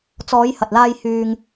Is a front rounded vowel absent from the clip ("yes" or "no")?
no